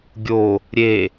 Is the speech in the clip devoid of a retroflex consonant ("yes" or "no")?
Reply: yes